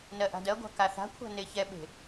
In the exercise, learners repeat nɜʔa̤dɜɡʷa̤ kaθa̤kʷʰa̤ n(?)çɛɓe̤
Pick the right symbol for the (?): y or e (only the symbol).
e